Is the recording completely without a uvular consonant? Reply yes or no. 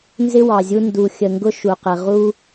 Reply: no